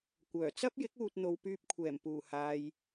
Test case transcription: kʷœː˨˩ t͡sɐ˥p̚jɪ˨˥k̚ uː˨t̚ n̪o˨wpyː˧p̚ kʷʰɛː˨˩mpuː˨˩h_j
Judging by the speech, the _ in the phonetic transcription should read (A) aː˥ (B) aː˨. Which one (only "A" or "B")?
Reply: B